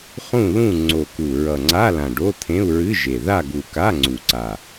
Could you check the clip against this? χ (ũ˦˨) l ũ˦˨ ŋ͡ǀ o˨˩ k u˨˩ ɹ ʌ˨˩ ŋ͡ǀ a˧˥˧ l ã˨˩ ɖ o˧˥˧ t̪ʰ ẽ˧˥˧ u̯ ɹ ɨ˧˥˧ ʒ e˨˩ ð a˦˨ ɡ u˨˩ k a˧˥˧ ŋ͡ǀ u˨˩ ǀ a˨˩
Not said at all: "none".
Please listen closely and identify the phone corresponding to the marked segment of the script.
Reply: ũ˦˨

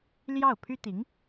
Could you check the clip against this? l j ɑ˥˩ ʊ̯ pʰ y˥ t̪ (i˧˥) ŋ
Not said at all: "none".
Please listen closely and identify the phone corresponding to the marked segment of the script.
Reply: i˧˥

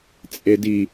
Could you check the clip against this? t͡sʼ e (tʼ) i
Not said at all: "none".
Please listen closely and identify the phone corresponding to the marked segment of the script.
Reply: d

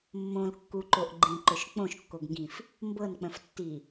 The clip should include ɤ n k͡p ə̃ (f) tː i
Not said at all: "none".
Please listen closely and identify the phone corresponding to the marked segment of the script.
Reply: f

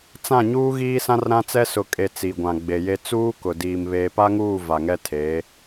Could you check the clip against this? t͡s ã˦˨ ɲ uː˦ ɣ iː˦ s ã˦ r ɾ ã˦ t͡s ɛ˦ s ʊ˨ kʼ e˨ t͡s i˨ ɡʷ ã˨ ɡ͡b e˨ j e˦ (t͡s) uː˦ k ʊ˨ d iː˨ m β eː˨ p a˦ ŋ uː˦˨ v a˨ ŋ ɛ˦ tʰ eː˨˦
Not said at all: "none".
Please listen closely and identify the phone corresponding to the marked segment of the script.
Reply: t͡s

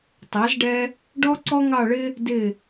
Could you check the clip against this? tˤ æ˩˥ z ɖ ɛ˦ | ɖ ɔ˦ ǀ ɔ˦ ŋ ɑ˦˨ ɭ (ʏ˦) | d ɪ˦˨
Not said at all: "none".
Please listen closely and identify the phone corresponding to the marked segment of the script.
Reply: ɪ˦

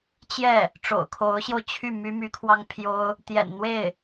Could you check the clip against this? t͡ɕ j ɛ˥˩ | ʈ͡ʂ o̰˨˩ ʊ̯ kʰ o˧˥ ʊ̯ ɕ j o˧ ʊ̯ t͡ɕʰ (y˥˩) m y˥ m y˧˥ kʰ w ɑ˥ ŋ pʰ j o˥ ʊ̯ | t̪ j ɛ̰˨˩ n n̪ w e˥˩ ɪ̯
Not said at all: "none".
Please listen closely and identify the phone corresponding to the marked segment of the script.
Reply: y˥˩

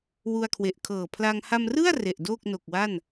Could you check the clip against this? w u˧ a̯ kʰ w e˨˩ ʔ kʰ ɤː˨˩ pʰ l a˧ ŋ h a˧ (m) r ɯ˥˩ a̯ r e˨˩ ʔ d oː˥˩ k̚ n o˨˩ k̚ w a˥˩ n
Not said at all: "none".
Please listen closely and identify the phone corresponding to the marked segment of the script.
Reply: m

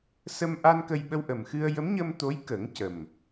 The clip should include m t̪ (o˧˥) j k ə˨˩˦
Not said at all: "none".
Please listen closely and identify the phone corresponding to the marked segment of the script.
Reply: o˧˥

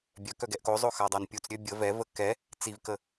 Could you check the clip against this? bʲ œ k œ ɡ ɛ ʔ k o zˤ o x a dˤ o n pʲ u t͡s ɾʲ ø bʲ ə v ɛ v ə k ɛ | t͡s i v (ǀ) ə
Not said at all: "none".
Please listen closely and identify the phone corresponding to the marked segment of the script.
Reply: k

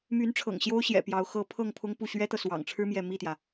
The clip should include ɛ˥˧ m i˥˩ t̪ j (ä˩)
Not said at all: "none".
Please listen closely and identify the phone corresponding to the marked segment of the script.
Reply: ä˩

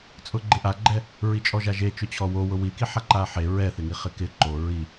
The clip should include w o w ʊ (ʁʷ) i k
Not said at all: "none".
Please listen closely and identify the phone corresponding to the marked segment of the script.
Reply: w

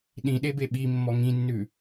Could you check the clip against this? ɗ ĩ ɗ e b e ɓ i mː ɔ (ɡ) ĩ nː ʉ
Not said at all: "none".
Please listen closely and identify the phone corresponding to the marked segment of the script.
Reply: ŋ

